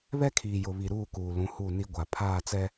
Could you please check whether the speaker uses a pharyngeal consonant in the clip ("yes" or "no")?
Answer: no